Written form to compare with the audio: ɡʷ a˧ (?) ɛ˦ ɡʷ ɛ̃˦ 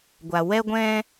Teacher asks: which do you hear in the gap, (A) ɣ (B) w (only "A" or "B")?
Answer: B